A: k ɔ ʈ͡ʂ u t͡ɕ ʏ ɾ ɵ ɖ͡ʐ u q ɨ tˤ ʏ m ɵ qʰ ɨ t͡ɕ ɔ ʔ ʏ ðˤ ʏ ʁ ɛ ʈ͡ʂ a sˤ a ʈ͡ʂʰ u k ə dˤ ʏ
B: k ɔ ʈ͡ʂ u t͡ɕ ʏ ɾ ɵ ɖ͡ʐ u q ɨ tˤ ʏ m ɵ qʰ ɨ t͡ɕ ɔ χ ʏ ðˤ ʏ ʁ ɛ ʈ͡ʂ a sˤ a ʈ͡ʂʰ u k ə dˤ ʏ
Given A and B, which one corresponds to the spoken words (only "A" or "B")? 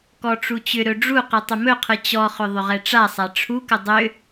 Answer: B